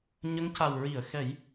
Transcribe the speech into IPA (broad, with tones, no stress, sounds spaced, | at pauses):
ɲ ə˧˥ ŋ c a˨˩ w ɹ i˨˩˨ ə̯ x ɛ˨˩˦ j